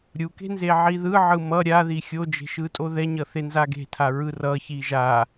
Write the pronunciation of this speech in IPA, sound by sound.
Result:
ɾʲuke̤nze ʕiðɯ ʕɯmʌ ɾʲaði xʲod͡ʒe̤ ʃɯtʼoðɛɲʌ θenzaɡe̤tʰa ɹɯrʌ çiʒa

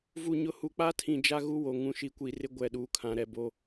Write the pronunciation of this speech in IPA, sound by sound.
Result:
vu˨ ɲʊ˨hu˨k͡pa˦tʰĩ˨ d͡ʒa˦ɣu˦wo˨ ŋũ˨ʃi˨kʷi˨rɪ˦ ɡʷɛ˨ɗuː˨kʰã˨ɾɛ˨ bo˦

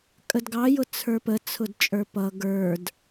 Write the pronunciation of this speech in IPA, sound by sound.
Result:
kʼədɡɑjʊ t͡sʰə˞pət͡sʰʊd t͡ʃʼə˞pʌ ɡə˞d

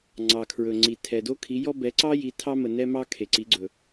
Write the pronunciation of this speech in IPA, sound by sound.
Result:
ŋ͡ǀɑ˨kʰɹɵ˨ ŋ͡ǀi˨ tʰɛ˨do˦kʰi˨˦jɔ˦ bɛ˨˦ǀɑ˦ ji˨˦tʰɑ˦mə˨ nɛ˦mɑ˦ kʰe˨ǀi˨˦ɡ͡ǀɵ˨

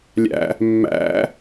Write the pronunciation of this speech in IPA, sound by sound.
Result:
lʲæ̰ | mːæ̰

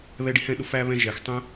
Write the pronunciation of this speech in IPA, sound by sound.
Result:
βɛ˧ ɖi˧hɛ̃˦˨ɗʊ˧ fæ˧ βɛ̃˦ʒɛ˨x tˤɛ̃˦

